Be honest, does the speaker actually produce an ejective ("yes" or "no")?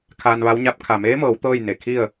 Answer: no